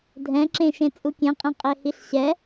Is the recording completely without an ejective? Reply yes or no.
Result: no